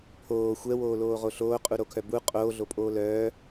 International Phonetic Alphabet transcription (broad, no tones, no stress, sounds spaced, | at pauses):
pʰ oː xʷ ɛ w oː l oː ʁ o ɬ oː qʼ u ɾ o kʰ œ b u qʼ oː ɮ o pʼ oː l œː